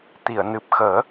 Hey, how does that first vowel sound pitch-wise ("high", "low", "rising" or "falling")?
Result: low